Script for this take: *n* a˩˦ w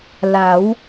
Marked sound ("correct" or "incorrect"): incorrect